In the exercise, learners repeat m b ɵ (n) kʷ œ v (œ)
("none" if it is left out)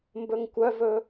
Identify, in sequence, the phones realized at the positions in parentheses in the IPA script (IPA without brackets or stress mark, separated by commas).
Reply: ŋ, ɵ